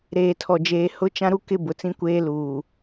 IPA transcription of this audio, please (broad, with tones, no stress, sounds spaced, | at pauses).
ɾ eː˨ tʰ ɔ˨ d͡ʒ eː˨ h ʊ˦ t͡ʃ ã˦ ɾ u˦ k ɪ˦ b ʊ˨ t͡s ĩ˦ kʷ eː˦ l uː˨